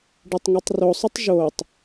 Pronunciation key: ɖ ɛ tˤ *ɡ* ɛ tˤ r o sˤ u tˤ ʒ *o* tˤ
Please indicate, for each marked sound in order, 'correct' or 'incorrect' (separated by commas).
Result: incorrect, correct